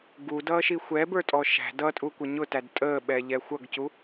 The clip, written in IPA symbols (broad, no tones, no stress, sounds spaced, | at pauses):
ɡ u d ʌː ʃ i xʷ ɛ b ə˞ tʼ ɔ ʃ æ̤ d ʌ tʼ u kʷ ə ɲ ʊ t æ d tʼ əː ɓ ɛ ʎ ɛ xʷ ʌ ɡ c u